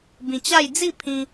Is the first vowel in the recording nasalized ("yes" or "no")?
yes